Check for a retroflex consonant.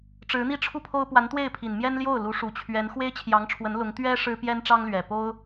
present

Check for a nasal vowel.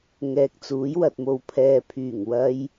absent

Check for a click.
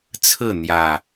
absent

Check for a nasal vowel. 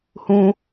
present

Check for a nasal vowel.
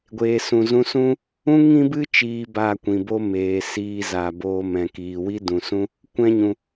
present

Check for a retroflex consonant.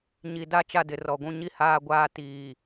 absent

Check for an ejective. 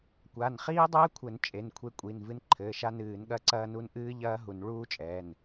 present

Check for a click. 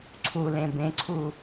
present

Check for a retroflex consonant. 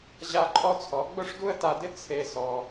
present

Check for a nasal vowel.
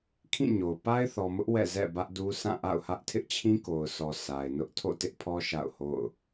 present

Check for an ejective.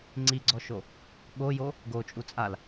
present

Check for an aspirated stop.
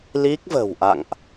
absent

